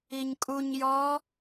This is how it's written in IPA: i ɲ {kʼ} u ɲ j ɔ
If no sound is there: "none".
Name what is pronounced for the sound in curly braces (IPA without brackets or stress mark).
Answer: kʼ